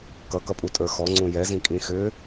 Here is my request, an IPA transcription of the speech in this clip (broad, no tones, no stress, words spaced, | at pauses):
kʌkʌpʼutʼə˞ xɔŋ͡ǀũ jɛzĩkʼĩ xʏ